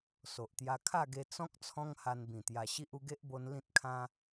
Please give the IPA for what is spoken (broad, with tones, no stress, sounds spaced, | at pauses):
s o˨ ʔ t̪ j a˧ kʰ a˥˧ ɡ e˧ t͡s ɔ̃˦ k̚ t͡sʰ ɔ̃˦ ŋ h a˧ n b ĩ˨˩ t̪ j a˧ ɕ i˦ ʔ u˧ ɡ e˦ ʔ b o˧ n l ĩ˦ t̚ kʰ ã˦